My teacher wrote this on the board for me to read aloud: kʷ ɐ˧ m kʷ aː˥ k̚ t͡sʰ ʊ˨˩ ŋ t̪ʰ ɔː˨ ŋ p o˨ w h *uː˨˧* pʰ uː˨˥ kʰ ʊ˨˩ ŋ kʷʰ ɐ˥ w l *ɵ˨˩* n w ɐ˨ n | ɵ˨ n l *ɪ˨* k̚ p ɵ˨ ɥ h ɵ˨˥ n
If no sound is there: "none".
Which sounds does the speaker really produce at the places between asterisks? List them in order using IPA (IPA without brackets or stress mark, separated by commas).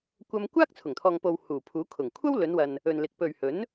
uː˨˩, ɵ˨˧, ɪ˨˥